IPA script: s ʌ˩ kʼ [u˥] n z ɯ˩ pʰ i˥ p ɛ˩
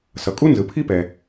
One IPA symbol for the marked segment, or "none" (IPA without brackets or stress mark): u˥